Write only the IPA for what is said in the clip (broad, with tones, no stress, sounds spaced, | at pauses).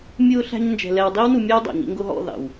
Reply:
mʲ ʊː˦ ɬ æ̤˦ ɲ n d͡ʒ ɛ̤˧ l ɛ˧ w dˤ i˦ w n u˧ mʲ ɛ˦ w dˤ ɑ̰˨ ɲ ḭ˦ ŋ ɡ ʊ˧ ɦ ɔ̰˦˨ ð ɑ̰˨ w